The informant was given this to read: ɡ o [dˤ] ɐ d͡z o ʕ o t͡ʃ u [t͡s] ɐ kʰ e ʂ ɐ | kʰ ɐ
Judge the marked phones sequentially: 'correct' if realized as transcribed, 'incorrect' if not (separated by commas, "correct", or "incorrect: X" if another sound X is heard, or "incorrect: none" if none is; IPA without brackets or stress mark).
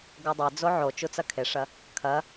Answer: correct, correct